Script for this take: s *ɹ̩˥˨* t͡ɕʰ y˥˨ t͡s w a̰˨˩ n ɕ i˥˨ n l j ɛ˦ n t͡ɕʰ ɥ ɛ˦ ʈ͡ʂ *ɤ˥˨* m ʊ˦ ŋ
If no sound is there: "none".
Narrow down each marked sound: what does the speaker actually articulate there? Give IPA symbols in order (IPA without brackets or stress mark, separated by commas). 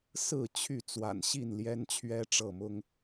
ɹ̩˥˨, ɤ˥˨